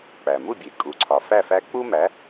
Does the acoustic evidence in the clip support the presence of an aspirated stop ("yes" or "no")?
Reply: yes